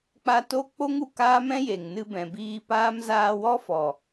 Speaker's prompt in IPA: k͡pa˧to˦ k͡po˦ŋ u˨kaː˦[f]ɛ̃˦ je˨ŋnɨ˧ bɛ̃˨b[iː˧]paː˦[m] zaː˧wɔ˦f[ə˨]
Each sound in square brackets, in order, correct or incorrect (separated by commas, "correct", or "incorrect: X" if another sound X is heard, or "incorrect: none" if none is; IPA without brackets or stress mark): incorrect: m, correct, correct, incorrect: ɔ˨